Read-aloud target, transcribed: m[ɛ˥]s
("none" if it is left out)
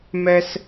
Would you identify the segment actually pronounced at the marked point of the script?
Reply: ɛ˥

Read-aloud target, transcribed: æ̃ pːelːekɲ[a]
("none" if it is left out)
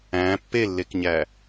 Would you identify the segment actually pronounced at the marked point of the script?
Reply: æ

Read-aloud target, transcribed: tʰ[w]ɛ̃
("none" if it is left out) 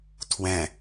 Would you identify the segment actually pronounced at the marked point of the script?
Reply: w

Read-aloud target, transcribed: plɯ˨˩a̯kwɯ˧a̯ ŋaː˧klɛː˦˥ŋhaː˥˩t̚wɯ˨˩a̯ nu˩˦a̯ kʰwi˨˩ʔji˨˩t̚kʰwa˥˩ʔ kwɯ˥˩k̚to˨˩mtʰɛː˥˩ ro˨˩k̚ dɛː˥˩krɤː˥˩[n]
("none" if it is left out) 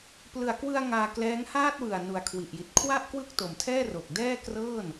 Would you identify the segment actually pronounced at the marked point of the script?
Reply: n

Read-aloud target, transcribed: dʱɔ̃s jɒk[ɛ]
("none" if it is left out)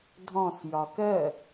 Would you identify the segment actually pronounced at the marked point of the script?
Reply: ɜ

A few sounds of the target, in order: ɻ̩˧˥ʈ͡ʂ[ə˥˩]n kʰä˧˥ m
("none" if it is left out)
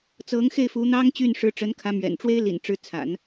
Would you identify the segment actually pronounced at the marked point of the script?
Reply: ə˧˥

